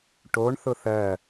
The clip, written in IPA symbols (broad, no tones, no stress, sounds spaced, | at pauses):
ʈ o ɳ θ ʊ θ ɜ